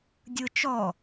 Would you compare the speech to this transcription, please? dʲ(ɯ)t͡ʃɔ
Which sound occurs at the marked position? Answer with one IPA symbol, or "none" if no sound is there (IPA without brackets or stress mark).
ɯ